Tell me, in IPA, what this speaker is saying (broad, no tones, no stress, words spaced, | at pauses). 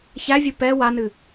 çævʲɨ pɛ wanɨ